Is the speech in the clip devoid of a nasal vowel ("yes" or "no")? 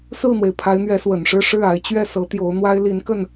yes